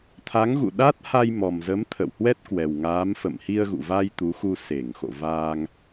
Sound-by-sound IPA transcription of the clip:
t̪ʰa˨˦ŋɣṵ˧˨ɗa˦˥t̚ha˧j mɔ˨˩mzə˨˦m t̪ʰə̰˧˨whwɛ˦˥t̚kwɛ˨˩w ŋaː˨˦m fə̰˧˨mhi˧ə̯ɣṵ˧˨va˧j t̪u˨˦xu˧ se˧˩ŋxo̰˧˨vaː˧ŋ

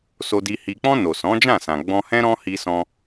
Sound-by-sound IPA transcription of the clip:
so˧di˧ hi˨k͡pɔ̃˧ no˨sɔ̃˨˦d͡ʒã˦˨sã˨ ɡ͡bɔ̃˧hɛ̃˦ ɾɔ̃˧ hi˧sɔ̃˧

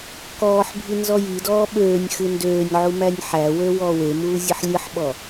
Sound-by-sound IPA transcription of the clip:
kɔːħbʱi nzɔjidɔː ɓøːnʲ xɨndøːnʲʕu mænʲħæwø wɔːwemuː zʲɨħlʲɨħɓɔ

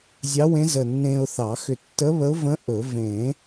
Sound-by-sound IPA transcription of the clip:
zʲɑ˧˥wẽ˧˥zə˧˩ nːẽ˧ʊ̯θɑ˨˩˦xʏ˧˩ tːə˧˥βə˧˥ʊ̯və̃˧˥ ʔɵ˨˩˦ vẽ˨˩˦

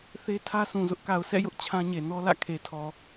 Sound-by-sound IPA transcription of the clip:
θe˦tʰä˦sʰũ˨ zʊ˦ʔka˨ʊ̯ sʰɛ̰˦˨jʊ˦ʔ t͡ɕʰã˦ɲe˨ nɔ˦lä̰˦˨ kʰe˨tʰɔ˨

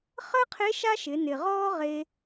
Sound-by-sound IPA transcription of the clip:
χəː˥qʰe˧˥ ʃa˥ʃɪ˩˧ nɪ˩ʁɔː˥ ʁe˧

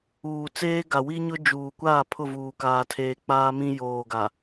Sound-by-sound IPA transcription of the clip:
uː˨t͡seː˦ɡa˨ wi˦ɲʊ˦ d͡ʒuː˨kʷaː˦˨ pʰʊ˦˨vuː˨kaː˨tʰeː˨ k͡paː˦mĩ˦joː˨ɡa˨

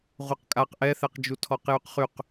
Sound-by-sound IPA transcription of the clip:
ʁʷɛqkʼaq ʔɛθɛqd͡ʒu tʰɔqjyqχyq

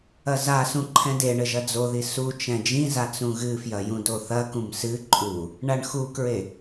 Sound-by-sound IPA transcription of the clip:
ɐzasũ ǃʰɛ̃deɳɘ ʒɐd͡zoði sut͡ʃɛ̃ d͡ʒĩza t͡sũɣɨfjɐ jũdoθɐkũm sɨ ǃʼu | ɳaɳxukɹe

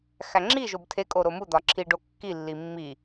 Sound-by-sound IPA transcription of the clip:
xæŋ͡ǁiʒob tʰe kʼoɾomud̪ɒ ǁʰiɖo kːilːi mːi

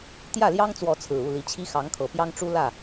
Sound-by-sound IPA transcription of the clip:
t̪jä˥˨ljɑ˦ŋt͡swɔ˨˦t͡sʰɹ̩˨˩ u˥˨li˨˦t͡ɕʰi˦ xɑ˨˦ŋkʰɤ˨˩pjɑ˦ŋʈ͡ʂu˦ lä˥˨

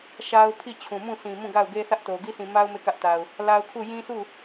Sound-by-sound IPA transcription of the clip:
ʃa˦ʊ̯ pʰi˦˨t͡ɕʰũ˨mũ˦˨ sʰĩ˨mũ˦˨ɡa˦˨ʊ̯ɡe˦ θä˦ʔ to˨ ɡi˦sʰĩ˨ ma˦ʊ̯ me˦˨kä˦ʔta˨ʊ̯ | la˦ʊ̯kʰu˦˨ jĩ˦sʰu˦˨

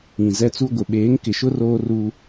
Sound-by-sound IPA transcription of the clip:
ĩ˨zɛ˦ t͡su˦ɡʷɪ˨ ɓeː˨˦ŋkɪ˨ʃʊ˦r oː˦ru˦

